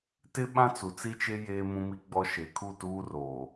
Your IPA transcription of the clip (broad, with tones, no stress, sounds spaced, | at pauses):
t ɪ˦ ɓ ã˦ t͡s u˨ t͡s i˦ t͡ʃ e˦ j eː˦ m ũ˦ m i˦ ɡ͡b ɔ˦ ʃ e˨ kʰ u˦˨ t uː˦ r oː˨